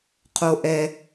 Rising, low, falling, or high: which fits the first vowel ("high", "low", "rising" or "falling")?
high